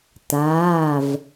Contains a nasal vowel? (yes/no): no